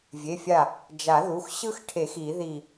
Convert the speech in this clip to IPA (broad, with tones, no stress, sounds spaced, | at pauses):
vʲ e˩˧˩ fʲ a˧˩ | d͡ʒ a˨˩˦ ð u˩˧˩ x ɕ ɯ˦ x ʈʰ e˨˩˦ x i˨˩˦ ð i˧˩